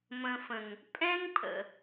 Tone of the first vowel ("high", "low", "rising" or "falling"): low